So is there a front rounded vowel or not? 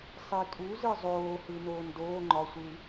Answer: no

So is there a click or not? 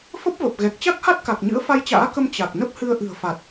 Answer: no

